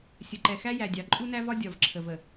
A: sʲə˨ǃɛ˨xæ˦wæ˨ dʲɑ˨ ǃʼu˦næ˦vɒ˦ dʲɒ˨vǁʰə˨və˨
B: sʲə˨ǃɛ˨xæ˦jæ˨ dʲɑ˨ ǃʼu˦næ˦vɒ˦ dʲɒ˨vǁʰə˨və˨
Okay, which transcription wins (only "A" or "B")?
B